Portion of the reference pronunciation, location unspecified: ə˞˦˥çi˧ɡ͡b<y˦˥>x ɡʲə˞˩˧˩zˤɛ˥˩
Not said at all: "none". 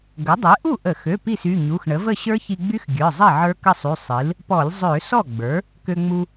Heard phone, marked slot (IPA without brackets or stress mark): y˦˥